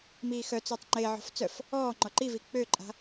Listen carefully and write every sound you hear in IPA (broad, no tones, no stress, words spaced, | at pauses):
miːxœt͡søtˤ ŋ͡ǃeʕɔ̤f t͡sœf | ɔːŋ͡ǃɔ ǃivi k͡pøǃʼa̤